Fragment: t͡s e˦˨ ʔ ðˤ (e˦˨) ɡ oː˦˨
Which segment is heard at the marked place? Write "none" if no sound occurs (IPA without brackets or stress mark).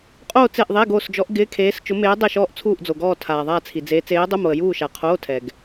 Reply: e˧˥˧